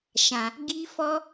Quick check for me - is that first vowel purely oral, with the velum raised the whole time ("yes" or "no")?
no